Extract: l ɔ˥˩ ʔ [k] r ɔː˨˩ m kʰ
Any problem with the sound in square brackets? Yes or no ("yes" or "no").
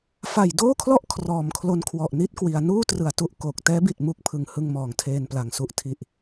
yes